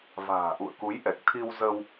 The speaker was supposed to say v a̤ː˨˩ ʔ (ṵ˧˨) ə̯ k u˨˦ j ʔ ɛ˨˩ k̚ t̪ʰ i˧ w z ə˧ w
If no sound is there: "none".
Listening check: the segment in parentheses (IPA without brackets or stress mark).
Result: ṵ˧˨